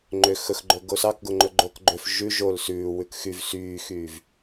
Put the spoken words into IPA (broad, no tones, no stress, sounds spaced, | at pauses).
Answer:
ŋ͡ǃ ø x ɵ x ɡ͡ǃ ɵ ɡ o s ɑ k ɡ o ŋ͡ǃ ɵ ɡ͡ǃ o k ɡ͡ǃ ø f ʒ ʉ ʒ o l s ʉː w ʉ k x y v s yː x yː v